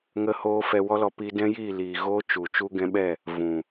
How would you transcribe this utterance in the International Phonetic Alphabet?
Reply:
ŋ ə˧ h oː˧ f ɛ˧ w ɔ˦ l ɔ˧ p i˧ d ɛ̃˦ j iː˦˨ l iː˨ ɣ oː˦ t͡ʃ u˨ t͡ʃ u˧ ɡ ɛ̃˧ ɓ ɛ˦˨ | v ũ˨

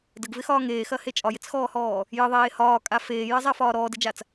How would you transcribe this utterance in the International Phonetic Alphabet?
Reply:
d ə ɡ v ɪ x ɒː ŋ eː x ɐ h e t͡ʃʼ ɒ j ɪ t͡s x ɔː h ɔː | j ə ðˤ eː h ɒː kʼ a f eː j ɐ zˤ a f ɒː ɾ ɔː d ɪ d͡ʒ a t͡s

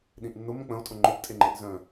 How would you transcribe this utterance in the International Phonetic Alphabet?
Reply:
ɗ ĩ ʔ nː ʊ m ə̃ k͡p ə̃ o̯ tʼ ʊ ŋ͡ǃ ʊ p tʼ e ŋ͡ǃ e ʔ z œ̃

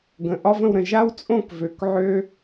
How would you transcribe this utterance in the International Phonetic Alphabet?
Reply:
ɡ ə̃˩˧ ʔ ɒ˥ v ə̃˥˧ w ɾ ə̃˧˩ ʒ a˥ w t͡sʼ õ˥˧ k v ø˩˧ k ʕ ø˥

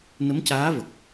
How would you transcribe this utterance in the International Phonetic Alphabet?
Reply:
n ə˧˥ m c aː˧˥ v ə˨˩ k̚

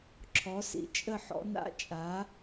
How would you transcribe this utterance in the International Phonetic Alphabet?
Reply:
ǁʰ ɔ˩˥ s ḭ˨ t͡ʃʼ ə˥˩ ħ ɔ̰˩˥ n a̰˧˥˧ t͡ʃʼ a˩˥

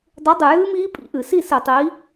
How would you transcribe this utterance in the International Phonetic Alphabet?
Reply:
dˤ u˨˥ dˤ ɨ˨˩ j ɨː˦˥ m iː˦˥ pʼ ḭ˧˩˧ ʔ ɨ˧˩˧ s i˥˨ s ɨ˧˩˧ tˤ iː˨˥

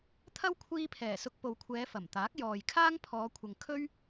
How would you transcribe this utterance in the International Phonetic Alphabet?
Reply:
t̪ʰ ɐ˥ w kʷʰ iː˧ pʰ ɛː˨˩ s ʊ˧ k̚ p o˨ w kʷʰ ɛː˨˧ f ɐ˨˩ m t̪ aː˨˥ k̚ j ɔː˨ j kʰ aː˥ ŋ pʰ ɔː˨˧ kʷʰ ɐ˨ ŋ kʰ ɵ˥ ɥ

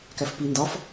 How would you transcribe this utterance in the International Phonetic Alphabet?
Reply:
k æ f p i n d ɒ f

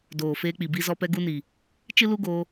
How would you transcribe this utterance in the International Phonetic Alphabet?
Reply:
d oː˨ f eː˧ k͡p i˨ b i˧ z ɔ˧ p ɛ˧ ɡ u˧ n i˨ | t͡ʃ ɨ˦ l u˦ ɡ oː˧

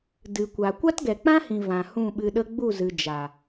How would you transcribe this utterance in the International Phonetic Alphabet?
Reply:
d ɨ˨ kʷ a˨ kʷ a˦ t ɡ ɛ˨ k͡p ã˦ h ĩ˨ v ã˨ h ũ˦˨ ɓ ɨ˧ ɗ ə˦ ɡ͡b u˦˨ z ɨ˨ d͡ʒ a˨

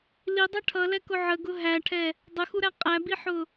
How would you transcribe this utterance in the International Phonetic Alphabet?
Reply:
l i dˤ ʌ ʈʰ ʌ l ɛ k ʊ ʕ ə ɡ ʊ ɦ æ ʈʰ ɛ | dˤ ə x u ɾ æ qʼ æ b i ħ ʊ

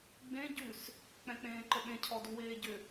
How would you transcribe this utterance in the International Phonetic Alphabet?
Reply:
ɡ͡b ẽ ɟ ʉ s | k͡p ɛ̃ k͡p ẽː ǃ ə ɓ ẽ cʰ ɔ d u w eː ɟ ʏ

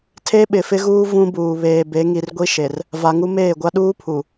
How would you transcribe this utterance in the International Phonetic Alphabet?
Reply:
tʰ e˦ ɓ ɪ˨ f ɪ˦ ɣ uː˦ v ũ˦ b uː˨ β eː˨ b e˨˦ ŋ i˨ r ɡʷ i˦ ʃ e˨ r | v a˨ ŋ u˦ m eː˦˨ ɡʷ a˦ ɗ uː˦ pʰ u˨

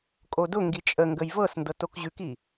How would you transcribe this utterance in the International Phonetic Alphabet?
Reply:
kʼ o d ʊ ŋ ɡ i t͡ʃʼ ə ŋ ɡ ə j v ɤ s n d ɤ t o k ʑ ʉ k i

